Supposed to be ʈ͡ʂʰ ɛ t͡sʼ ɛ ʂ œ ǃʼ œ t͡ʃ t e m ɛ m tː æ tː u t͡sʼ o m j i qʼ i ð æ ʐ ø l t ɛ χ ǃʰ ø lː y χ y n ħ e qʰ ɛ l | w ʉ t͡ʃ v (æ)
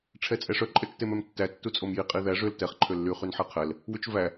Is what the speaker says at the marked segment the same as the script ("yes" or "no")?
yes